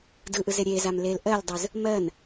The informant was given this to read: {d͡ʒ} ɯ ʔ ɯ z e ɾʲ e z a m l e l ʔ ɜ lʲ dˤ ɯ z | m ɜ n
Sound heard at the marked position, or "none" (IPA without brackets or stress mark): d